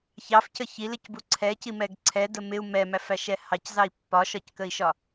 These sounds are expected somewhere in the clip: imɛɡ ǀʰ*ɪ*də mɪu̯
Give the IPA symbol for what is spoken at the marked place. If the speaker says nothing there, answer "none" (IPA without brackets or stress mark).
ɛ